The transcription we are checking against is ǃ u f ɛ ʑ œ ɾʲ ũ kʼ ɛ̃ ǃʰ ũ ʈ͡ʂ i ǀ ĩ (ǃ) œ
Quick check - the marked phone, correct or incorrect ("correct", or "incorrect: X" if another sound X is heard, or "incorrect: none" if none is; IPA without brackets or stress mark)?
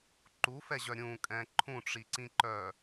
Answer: correct